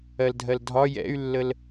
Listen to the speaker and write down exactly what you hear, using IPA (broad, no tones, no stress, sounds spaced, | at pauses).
ɜ l dʱ ɜ l dʱ ɒ j ɛ̰ y̯ lː ə l